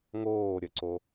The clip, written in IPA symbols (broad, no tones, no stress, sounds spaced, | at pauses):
ŋ oː ɾʲ ə ǀ o